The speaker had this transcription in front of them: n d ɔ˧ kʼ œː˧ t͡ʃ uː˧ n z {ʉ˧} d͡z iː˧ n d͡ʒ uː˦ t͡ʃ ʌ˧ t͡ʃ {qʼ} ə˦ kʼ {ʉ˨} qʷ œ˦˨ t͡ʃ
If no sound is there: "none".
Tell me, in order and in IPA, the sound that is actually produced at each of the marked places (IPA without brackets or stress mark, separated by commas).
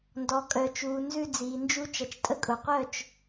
ʉ˦, tʼ, ʊ˨